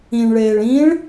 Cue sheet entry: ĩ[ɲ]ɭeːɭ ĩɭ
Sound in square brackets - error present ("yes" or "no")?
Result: yes